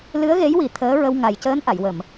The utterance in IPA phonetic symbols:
lɨ˧˥ə̯ɣe˧˥jwi˨˩˦ t̪ʰəː˧˥ɹə˧w ŋa˨˩jcəː˧˥n ʔa˨˩˨jwə˨˩˨m

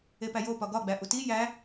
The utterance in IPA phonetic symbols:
epæjopɒ ɡɒɡ͡bæ ʔuti jæ

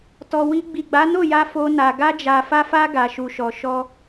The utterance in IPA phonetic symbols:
tɔ˨wi˧ ɡ͡bi˨ɡ͡ba˨˦no˦˨ja˧ fo˧na˨ ɡa˧d͡ʒa˨fa˧fa˧ ɡa˨ʃu˨ʃɔ˨ ʃɔ˧

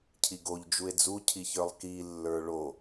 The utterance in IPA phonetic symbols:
cʰiɡoʎ d͡ʒue̯d͡zu cʰiçə˞lˠki lːə˞ɭo

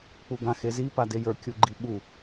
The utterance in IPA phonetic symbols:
k͡puɡãxezi padejə˞ kʲuɡ͡ǃiɓu

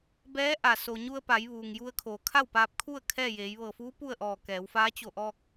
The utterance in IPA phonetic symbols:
bɛː˧˥ ʔa˩ so˩ɲu˧ə̯ pa˩˧j ʋuː˩ŋju˧ə̯kʰoː˩˧ kʰa˥˨wpaː˧p̚kʰu˥˨ə̯ kʰɛː˥˨jeː˩˧jʋɤː˧˩ fuː˧˥ pu˥˨ə̯ʔɔː˧˩kɛː˩˧wfaː˧˥ t͡ɕo˧˩ʔɔː˧k̚

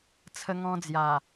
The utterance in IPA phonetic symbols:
t͡sʰə˦ŋɔ̃˦d͡zja˨˩

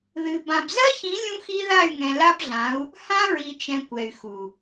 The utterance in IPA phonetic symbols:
ðɨ˨ bã˨bzɜ˦çĩ˨˦ lʲũ˦xi˦ ða˦˨y̯ŋɛ̃˨la˦bɮã˨˦u̯ | hã˦ɹi˨t͡ʃɛ̃˨ kʷɛ˨y̯xu˨

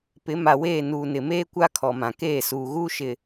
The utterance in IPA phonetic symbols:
pɪ˨˦ ma˨weː˦˨ nuː˨nɪ˨meː˦kʷa˦ kʰɔ˨mã˨ keː˦˨suː˨ ɣuː˦ ʃɪ˨

